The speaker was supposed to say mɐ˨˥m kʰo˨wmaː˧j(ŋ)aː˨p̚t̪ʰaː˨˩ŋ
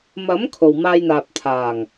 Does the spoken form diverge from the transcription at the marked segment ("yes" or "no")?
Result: yes